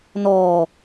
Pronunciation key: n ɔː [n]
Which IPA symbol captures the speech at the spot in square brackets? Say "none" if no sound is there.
none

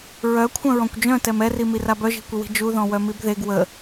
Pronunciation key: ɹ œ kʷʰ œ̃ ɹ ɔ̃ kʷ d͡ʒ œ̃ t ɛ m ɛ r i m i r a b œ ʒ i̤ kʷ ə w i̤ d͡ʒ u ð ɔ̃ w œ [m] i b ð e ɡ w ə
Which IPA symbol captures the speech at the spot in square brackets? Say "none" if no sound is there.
m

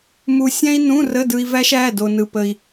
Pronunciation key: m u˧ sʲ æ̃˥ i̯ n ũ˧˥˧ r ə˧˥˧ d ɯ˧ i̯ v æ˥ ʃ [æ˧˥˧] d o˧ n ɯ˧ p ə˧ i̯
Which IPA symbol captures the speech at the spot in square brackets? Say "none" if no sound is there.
æ˧˥˧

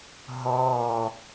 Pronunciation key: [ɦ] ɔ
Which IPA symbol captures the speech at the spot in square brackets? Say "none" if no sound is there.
ɦ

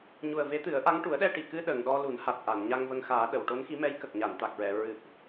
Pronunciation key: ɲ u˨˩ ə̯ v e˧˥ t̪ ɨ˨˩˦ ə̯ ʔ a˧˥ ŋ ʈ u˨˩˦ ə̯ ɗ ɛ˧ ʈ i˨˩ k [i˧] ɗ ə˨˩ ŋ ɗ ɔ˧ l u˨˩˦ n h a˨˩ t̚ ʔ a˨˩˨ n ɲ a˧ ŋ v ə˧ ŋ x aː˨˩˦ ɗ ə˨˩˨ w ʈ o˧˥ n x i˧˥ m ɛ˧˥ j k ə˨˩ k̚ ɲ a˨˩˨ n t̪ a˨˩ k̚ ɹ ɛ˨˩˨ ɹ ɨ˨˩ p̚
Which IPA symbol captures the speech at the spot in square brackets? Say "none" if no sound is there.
ɨ˧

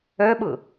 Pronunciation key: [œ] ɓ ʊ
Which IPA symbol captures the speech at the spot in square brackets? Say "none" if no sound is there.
œ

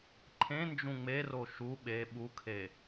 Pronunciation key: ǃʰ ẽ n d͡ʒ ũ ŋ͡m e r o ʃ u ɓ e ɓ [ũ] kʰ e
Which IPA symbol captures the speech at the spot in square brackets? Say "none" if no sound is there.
u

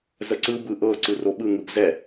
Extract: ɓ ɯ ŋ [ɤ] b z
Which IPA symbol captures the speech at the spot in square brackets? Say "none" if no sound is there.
ɯ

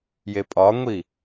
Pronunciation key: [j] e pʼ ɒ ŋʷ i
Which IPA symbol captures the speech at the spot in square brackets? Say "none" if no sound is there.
j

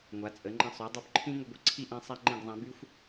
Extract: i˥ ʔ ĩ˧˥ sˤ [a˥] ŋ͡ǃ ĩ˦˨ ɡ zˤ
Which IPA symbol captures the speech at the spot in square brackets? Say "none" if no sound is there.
a˥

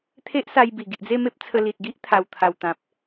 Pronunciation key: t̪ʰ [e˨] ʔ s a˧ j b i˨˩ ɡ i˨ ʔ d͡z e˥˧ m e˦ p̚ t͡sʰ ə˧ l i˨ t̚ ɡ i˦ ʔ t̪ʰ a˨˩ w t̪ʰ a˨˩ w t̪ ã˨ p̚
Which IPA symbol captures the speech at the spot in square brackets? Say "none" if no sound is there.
e˦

